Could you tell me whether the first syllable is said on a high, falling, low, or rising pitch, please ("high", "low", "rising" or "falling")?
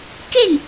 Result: falling